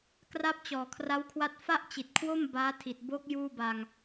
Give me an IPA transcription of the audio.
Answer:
k r a˦˥ p̚ t͡ɕ ɔː˨˩ kʰ r a˦˥ w kʰ w a˦˥ t̚ f a˥˩ ʔ t͡ɕ i˨˩ t̚ kʰ w o˥˩ m b aː˦˥ tʰ i˨˩ t̚ b o˦˥ k̚ j uː˥˩ b a˧ ŋ

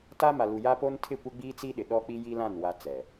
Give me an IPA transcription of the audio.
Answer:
t a˦ m a˨ l u˨ j a˦ p o˦ n tʰ ɪ˦˨ kʷ ɪ˦ ɡ͡b iː˦ t͡s i˦ ɗ ɪ˨ ɗ ɔ˦ k͡p i˦ j i˦ l ã˦˨ n w a˦ t͡s ɛ˨

